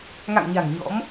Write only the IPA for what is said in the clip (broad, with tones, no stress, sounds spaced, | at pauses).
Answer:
ŋ a̰˧˨ ŋ ɲ a̤˨˩ ŋ ɲ ɔ̰˧˥ m